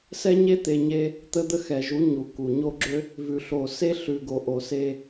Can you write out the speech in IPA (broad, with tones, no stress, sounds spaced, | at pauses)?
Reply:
s ɛ˦ ɲ e˦ t̪ e˨ ɲ e˦ | t̪ ə˦ d̪ ə˦ x ɛ˨ ʒ u˨˦ ɲ u˨ k u˨ ɲ o˦ ɡ͡ǁ ø˦ | v ʉ˨ ɬ o˨ s e˦ ɬ ʉ˨ ɡ o˨ ʔ o˨ s e˦